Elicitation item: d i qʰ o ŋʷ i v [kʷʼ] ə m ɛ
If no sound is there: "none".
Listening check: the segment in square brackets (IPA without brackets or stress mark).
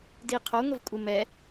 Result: kʷʼ